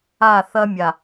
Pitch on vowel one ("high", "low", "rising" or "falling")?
falling